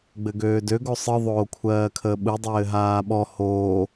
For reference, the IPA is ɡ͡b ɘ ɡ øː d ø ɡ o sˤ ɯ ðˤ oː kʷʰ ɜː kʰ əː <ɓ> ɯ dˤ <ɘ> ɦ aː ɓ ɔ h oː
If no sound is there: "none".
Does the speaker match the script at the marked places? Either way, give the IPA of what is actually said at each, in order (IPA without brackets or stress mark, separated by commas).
ɓ, ɘː